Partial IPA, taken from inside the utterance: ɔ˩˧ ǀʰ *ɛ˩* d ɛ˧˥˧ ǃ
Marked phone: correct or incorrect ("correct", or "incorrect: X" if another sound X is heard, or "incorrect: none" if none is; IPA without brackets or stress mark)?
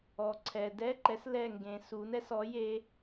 correct